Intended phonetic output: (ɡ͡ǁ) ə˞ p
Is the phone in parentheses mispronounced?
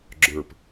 no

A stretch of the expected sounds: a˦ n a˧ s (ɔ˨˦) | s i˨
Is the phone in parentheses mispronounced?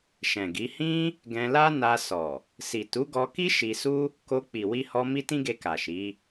yes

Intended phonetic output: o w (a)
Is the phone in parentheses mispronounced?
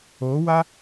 no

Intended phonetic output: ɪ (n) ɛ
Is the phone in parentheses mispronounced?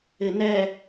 no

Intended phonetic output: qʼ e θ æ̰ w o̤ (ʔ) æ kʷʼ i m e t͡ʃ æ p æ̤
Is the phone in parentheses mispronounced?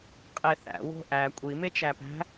no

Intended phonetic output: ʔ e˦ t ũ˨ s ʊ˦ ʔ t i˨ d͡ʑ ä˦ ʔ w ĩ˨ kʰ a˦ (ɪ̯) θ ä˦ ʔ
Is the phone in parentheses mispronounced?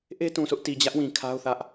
yes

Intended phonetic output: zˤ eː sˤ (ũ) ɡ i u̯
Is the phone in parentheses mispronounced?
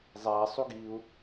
yes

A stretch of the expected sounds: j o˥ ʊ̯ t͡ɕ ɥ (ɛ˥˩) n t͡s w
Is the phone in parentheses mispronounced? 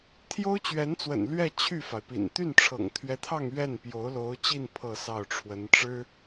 yes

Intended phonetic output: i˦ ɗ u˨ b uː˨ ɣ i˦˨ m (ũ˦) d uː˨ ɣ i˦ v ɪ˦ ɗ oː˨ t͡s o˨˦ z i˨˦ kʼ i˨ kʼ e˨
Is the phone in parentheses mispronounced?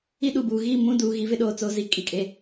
no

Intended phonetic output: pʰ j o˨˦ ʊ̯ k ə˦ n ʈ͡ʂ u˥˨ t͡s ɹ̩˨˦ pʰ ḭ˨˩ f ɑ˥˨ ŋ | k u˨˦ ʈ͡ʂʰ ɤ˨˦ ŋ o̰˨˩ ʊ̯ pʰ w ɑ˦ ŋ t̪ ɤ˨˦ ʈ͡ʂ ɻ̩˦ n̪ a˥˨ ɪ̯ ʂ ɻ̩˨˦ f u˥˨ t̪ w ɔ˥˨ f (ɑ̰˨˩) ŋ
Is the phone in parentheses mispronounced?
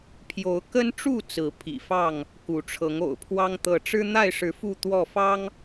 yes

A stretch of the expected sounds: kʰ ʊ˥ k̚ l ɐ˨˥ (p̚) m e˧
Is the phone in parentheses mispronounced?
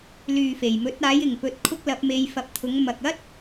no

